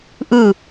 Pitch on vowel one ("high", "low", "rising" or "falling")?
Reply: falling